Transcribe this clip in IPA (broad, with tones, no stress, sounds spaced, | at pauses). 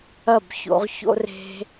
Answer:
ɐ˦˨ b ç o̰˧ ʁ ç o̰˦ r e̤˧